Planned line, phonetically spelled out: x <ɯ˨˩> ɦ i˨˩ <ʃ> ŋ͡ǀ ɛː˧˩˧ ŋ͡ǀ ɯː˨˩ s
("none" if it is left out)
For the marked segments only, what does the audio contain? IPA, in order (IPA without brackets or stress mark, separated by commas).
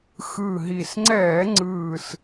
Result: ɯ˨˩, s